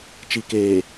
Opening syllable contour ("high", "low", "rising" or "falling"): low